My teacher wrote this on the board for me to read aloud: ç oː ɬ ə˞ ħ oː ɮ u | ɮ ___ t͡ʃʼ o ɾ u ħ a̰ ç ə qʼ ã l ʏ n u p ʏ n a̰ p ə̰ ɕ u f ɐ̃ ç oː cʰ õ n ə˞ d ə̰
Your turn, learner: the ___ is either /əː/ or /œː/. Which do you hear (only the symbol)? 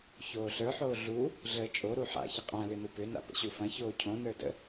əː